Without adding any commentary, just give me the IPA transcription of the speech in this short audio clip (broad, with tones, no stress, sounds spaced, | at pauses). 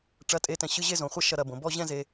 ʈ͡ʂ ɐ˧˥˧ tʼ e˧˥˧ t ɛ̃˧ ɕ ɨ˧˥˧ ʑ e˥˧ z õ˨˩ χʷ ɐ˥˧ ʃ ɐ˥˧ ɾ ɐ˥˧ b õ˩˧ b ɔ˥˧ ʑ ɛ̃˥˧ z e˧